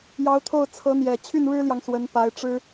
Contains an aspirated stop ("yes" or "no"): yes